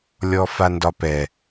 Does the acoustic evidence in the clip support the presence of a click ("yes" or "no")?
no